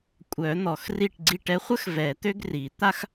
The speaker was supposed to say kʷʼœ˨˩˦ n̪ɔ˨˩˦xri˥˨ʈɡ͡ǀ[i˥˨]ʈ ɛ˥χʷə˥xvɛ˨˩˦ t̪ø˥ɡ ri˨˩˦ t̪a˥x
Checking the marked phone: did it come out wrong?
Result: no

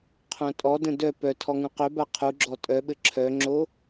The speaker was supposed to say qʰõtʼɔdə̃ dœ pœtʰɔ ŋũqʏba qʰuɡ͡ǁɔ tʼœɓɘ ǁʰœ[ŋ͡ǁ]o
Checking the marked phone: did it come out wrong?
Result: no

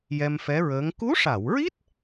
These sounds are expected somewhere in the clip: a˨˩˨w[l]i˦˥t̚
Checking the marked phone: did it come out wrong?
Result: yes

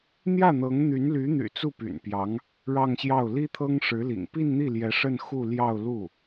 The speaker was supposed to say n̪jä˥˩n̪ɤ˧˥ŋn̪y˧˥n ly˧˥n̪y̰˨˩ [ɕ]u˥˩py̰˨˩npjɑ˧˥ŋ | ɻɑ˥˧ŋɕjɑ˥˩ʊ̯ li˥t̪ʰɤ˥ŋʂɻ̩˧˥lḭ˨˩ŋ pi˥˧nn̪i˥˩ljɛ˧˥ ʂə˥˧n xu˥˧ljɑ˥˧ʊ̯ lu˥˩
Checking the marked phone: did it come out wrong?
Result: yes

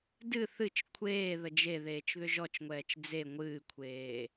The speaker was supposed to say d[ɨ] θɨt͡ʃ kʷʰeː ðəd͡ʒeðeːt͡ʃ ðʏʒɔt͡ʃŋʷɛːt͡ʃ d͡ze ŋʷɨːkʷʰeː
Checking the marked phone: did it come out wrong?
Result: no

